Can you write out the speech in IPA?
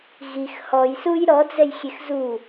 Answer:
ɣ i x h ɔ j s u j ɾ ɔ d͡z ɛ j xʲ e x z u

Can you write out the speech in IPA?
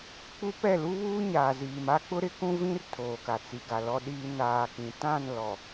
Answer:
k͡p u˦ p ɛ˦˨ l u˦ β uː˦ ɲ aː˨ z iː˨ m a˦ k͡p ʊ˦ ɾ ɪ˦ k ũ˦ v ĩ˦ r tʰ oː˨ k a˨ t͡s i˨ ɡ a˨ l ɔ˨ ɗ iː˨ n aː˨ k ĩ˨ t ã˦˨ n l ɔ˨

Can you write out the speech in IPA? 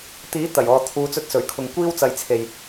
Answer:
t̪ iː˨˥ t̪ ɐ˨˩ j ɔː˨ t̪ʰ uː˨˧ t͡s ɵ˧ t̚ s ɵ˨˩ ɥ kʰ ʊ˨ ŋ kʷ iː˥ w t͡s ɐ˧ j t͡sʰ e˨ j

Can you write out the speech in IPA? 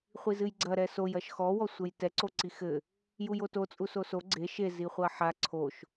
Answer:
χʷ i z ɨ j ɡ͡ǀ ɐ ɾ ɛ s o j ɐ ʃ x ɔ w ɔ sʷ ɘ j t ɛ ǀ o ǀ i x ɘ | j u j o t o t͡sʼ u s o s o ɡ͡ǀ e ʃ e z i χʷ ɐ ħ a ǀʰ o ʃ

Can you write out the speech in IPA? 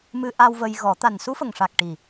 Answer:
m ɨ˧ ʔ a˧ w v ə˧ j ɣ ɔ˨˩˦ t̪ a˨˩ n s u˧˥ f ə˨˩ ŋ ʂ a˨˩ k̚ ʈ i˨˩

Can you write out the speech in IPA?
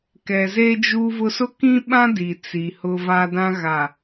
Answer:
k ɛ˨ z e˦ d͡ʒ u˦ v ʊ˦ s ʊ˦ k ĩ˦ ɓ ã˦ d i˨ t͡s i˨ h ʊ˦ v a˦ d ã˦ ɣ a˨

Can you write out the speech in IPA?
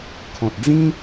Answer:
kʰ ɔ̃˨ t̚ d͡z ĩ˦

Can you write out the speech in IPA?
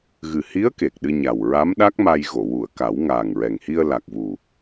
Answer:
ɣ ɨ˨˩ h i˧˥ ə̯ k e˨˩ k̚ ɗ ɨ˧ ɲ a˨˩ w ɹ a˧˥ m ɗ a˦˥ k̚ m a˧ j ɣ o˨˩˨ w u˨˩˨ ə̯ k a˨˩˦ w ŋ aː˨˩ ŋ ɹ ɛ˨˩ ŋ h i˧ ə̯ l a˨˩ k̚ v u˨˩

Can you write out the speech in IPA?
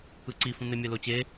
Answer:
ɯ ǀ i f ũ n̪ e mʲ ɛ l o t͡ɕ e

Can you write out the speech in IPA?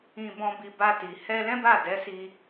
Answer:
ĩ˧ b ɔ̃˧ b i˧ b a˧ t i˨ h ɛ˧ l ɛ̃˦ b a˦˨ d ɛ˨˦ s i˧

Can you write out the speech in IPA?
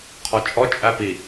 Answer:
qʰ ɔ t͡ʃʼ ɔ t͡ʃʼ æ p i

